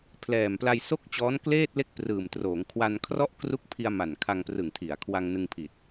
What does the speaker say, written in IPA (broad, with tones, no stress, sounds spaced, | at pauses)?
pʰ l ɛː˨˩ m p l a˧ j s o˥˩ k̚ t͡ɕ ɔː˦˥ n k l eː˥˩ t̚ l e˥˩ k̚ p r ɯː˨˩ m t r oː˩˦ ŋ kʰ w a˧ n kʰ r ɔ˥˩ ʔ k r u˦˥ k̚ pʰ i˧ a̯ m a˨˩ n kʰ a˧ ŋ p r ɯ˨˩ ŋ tʰ i˩˦ a̯ kʰ w a˧ ŋ n ɯ˧ ŋ pʰ i˨˩ t̚